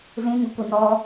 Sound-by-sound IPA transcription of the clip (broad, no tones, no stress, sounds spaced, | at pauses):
z ĩ ŋ ʏ kʷ i n ɔ